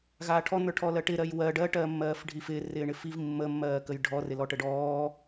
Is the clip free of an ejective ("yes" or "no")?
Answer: yes